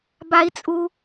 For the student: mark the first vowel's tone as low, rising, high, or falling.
high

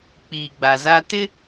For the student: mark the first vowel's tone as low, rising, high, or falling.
low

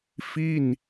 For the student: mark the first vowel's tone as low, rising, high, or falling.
falling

